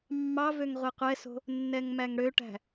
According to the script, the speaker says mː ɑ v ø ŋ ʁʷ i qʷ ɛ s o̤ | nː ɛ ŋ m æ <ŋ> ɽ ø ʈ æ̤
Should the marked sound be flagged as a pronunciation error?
no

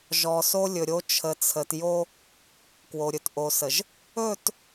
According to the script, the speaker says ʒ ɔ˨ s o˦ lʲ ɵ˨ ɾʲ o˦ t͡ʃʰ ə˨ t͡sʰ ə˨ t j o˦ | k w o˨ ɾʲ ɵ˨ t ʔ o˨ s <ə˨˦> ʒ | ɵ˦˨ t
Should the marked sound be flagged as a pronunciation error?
yes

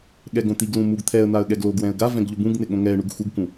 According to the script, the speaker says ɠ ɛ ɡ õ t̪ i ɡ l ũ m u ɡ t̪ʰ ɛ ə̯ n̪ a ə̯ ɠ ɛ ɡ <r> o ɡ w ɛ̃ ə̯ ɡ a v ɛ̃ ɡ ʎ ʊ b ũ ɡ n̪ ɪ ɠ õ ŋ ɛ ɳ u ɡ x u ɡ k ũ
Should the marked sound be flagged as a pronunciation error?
yes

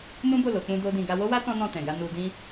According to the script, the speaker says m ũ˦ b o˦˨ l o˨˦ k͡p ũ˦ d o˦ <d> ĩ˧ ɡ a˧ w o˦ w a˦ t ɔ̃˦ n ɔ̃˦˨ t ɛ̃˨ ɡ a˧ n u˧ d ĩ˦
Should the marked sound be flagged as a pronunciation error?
no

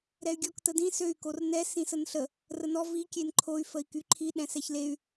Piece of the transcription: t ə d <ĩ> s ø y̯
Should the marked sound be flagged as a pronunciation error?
no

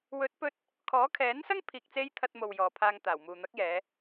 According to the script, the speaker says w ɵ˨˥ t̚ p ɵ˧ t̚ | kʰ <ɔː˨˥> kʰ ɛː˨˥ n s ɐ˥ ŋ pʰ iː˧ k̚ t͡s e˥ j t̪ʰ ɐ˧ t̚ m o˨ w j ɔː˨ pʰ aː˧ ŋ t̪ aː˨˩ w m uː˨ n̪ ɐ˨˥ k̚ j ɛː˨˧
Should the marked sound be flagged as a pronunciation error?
no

